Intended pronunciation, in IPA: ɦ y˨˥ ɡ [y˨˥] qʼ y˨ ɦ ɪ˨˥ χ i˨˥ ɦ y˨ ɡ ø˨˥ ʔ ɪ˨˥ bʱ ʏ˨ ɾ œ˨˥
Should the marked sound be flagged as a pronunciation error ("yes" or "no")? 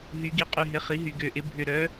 yes